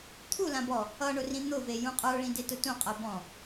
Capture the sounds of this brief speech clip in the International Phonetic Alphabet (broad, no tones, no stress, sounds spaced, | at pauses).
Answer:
t̪ʰ u l ã b ɔ | ʌ ɳ ʊ r ĩ n̪ ʊ v e j ũ qʼ ə˞ ɭ ĩ d e t ʊ t ũ qʼ ɜ b ɔ̃